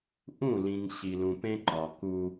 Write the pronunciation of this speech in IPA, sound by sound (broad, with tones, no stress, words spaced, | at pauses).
ʔũ˦˨lĩ˨ŋ ɕi˨lũ˨pẽ˦ ǃɒ˨ku˦